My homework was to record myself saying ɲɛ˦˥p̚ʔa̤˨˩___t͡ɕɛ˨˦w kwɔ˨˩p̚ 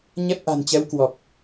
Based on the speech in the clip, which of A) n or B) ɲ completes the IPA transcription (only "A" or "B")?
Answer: A